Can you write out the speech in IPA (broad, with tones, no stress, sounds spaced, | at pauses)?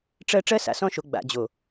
ʈ͡ʂ ɜ˦ ʈ͡ʂ ɜ˦ s a̰˨ s ɔ̃˦˨ ʃ o˨ ɡ͡b a̰˨ d͡ʑ o˨